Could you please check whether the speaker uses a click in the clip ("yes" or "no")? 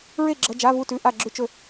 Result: yes